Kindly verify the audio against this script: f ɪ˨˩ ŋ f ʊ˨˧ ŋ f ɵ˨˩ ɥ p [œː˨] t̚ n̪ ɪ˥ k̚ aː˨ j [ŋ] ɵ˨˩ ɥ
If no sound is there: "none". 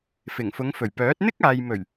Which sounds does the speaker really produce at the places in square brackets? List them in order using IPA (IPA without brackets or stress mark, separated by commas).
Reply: œː˨˥, m